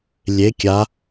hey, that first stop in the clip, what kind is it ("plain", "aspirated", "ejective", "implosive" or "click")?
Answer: plain